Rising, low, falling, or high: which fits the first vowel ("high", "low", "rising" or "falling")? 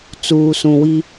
low